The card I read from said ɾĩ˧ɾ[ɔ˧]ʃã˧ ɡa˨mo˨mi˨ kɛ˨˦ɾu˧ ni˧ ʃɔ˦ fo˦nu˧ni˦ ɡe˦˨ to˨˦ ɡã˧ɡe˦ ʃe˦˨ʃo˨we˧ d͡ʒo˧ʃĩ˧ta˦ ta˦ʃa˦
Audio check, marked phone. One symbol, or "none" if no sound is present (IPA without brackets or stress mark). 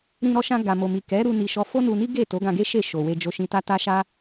ɔ˧